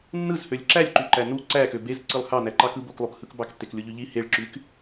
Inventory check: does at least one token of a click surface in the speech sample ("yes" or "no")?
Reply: yes